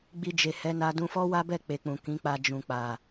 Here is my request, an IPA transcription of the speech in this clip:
ɡ͡bi˧d͡ʒe˨hɛ˨˦na˧ dũ˧fɔ˦wa˦bɛ˦˨ k͡pe˨k͡pũ˨ kĩ˨˦k͡pa˧ d͡ʒũ˨k͡pa˨

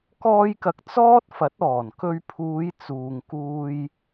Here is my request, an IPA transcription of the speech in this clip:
kɔː˧jkɐ˨k̚ t͡sɔː˥t̚fɐ˨˥t̚ɔː˨˩n kɵ˧ɥpʰuː˨˧j t͡suː˨ŋkuː˧j

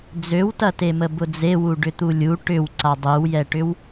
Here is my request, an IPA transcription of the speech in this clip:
d͡zøwtɐtemə bʊd͡zewu ɖʏt̪ulʲu ʈʏw ǀadˤiwjɛʈʏw

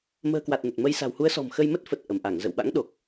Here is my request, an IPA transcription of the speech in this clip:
mə̤ː˨˩kwa˨˩t̚ nə˨˩t̚mə˧j sa̤˨˩whu˨˦ə̯sɔ̤˨˩m xə˧jmə˦˥t̚fə˨˩t̚ ʔə˧˩mʔa˧˩ŋ zə̰˧˨wɓa̰˧˥ŋ ɗo˨˩k̚

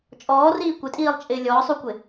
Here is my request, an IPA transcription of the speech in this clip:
t͡ʃʼɔːriː kʷɪtʼiːlˠt͡ʃʼɪː lʲɔːsˤukʷɪ

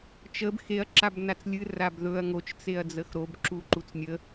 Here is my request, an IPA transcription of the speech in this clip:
t͡ʃəb xeɐ̯ ǁabnat͡slʲɨ rabðɵɐ̯ ŋot͡ʃ t͡seɐ̯d͡zəxɾob ǁuǃut͡snʲə

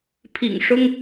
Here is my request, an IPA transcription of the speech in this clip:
pʰḭ˨˩ŋʂʊ˥ŋ

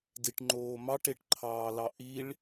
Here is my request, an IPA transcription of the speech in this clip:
diʈŋ͡ǃoːmɑʈ eʈǃʰɑːlɑʔiɭ

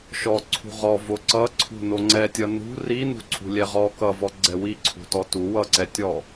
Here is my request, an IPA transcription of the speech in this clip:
ʃɔ ǀʰṳʁɔ voǀʌǀʰṳ noŋ͡ǀɛtʲʌ nṳ ri nṳǀʰṳlʲɛʁɔ kʌvɔ ɡ͡ǀɛwi ǀʰṳtɔtu wʌǀɛtʲɔ

